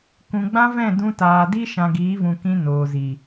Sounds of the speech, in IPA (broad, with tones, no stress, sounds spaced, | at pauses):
k ũ˨ ɡ͡b ã˦ v ɛ̃˦˨ d ũ˧ t aː˨ d i˦ ʃ ã˨ ɡ iː˨˦ v ũ˨ k ĩ˧ n oː˨ z i˨